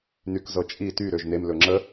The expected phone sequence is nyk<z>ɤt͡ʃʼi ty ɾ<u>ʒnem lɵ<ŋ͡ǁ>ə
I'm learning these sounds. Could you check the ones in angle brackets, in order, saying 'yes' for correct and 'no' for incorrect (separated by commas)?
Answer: yes, no, yes